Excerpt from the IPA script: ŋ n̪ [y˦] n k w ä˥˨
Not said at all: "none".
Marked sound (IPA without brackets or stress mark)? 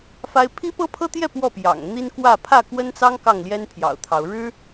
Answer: i˦